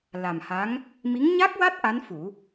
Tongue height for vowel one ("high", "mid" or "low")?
low